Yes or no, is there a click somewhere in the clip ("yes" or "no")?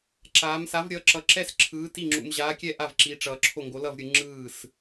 yes